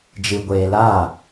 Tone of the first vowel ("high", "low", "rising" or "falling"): low